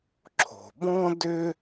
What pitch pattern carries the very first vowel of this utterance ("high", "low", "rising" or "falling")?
low